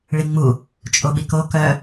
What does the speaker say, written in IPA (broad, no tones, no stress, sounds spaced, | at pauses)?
ɭ i ŋ͡m u | t͡ʃʼ o ɓ i k o k œ